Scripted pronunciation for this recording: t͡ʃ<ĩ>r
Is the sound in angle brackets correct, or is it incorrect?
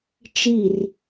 incorrect